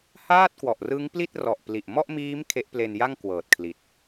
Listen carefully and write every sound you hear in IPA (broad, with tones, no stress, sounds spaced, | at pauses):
h aː˥˩ t̚ k w ɔ˨˩ ʔ r ɯ˦˥ ŋ p l i˥˩ t̚ r ɔ˨˩ ʔ p l i˨˩ ʔ m ɔ˥˩ ʔ m iː˦˥ m kʰ e˦˥ ʔ p l e˧ n j a˥˩ ŋ k w ɤː˨˩ t̚ kʰ l i˨˩ t̚